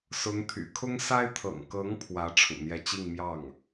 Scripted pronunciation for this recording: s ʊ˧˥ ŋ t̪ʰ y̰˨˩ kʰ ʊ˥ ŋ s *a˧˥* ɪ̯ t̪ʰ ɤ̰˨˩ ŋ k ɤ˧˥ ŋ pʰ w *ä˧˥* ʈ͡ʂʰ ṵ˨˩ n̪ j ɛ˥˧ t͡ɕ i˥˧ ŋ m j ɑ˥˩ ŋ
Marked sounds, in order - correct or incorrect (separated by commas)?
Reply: incorrect, correct